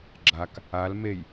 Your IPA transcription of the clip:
ɡ͡ǁ a k | a l m e j

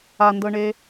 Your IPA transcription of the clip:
a n d ɤ ɳ e

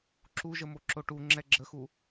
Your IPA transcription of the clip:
ǁ u ʒ ə m o ǁ o ʈ u ŋ͡ǁ ɛ ɡ͡ǁ ə x u

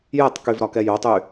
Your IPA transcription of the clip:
j ɛ tˤ k y v ɾ ɒ k ɛ j o tˤ y

